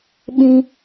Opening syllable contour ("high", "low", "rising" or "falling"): high